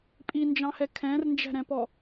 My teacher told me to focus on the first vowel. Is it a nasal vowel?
no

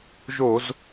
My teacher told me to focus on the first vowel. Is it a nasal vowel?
no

